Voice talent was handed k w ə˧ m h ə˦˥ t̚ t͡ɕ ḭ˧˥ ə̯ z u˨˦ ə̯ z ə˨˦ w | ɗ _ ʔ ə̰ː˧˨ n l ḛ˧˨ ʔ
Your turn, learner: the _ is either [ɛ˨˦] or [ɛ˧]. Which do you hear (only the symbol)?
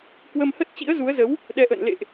ɛ˨˦